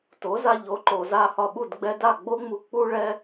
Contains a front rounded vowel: no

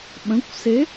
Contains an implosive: yes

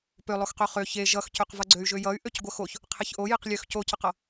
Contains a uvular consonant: yes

